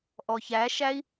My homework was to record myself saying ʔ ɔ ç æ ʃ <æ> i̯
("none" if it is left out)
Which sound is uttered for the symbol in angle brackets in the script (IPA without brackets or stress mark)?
æ